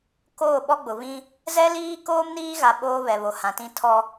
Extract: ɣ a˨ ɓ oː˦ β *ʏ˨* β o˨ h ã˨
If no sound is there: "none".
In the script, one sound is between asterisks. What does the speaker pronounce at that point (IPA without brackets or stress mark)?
ɛ˨